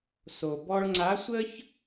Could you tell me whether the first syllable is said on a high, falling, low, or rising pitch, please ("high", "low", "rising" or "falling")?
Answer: low